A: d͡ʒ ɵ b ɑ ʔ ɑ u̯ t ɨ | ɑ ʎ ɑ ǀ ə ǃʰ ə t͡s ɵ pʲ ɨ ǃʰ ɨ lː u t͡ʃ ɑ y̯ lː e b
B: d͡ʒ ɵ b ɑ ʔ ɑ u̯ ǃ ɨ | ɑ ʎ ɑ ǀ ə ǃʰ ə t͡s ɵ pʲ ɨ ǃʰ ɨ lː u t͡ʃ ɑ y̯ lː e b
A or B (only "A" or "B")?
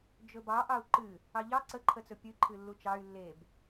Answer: B